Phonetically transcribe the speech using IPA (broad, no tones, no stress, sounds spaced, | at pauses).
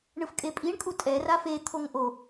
ɳ ɯ f kʼ e pʼ i ɳ kʼ u tʼ ɛ r a f e t̪ʰ o ŋ ʔ o